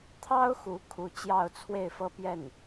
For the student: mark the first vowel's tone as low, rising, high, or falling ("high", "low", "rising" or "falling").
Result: high